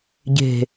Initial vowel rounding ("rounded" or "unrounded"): unrounded